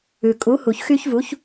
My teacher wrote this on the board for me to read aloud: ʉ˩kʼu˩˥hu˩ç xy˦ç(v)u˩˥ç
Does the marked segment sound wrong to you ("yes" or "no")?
no